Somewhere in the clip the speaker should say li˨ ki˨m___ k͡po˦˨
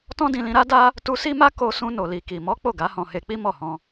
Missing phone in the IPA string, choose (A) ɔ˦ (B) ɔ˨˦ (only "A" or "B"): B